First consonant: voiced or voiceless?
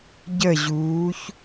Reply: voiced